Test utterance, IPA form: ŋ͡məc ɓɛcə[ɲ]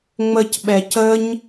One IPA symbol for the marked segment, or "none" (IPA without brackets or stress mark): ɲ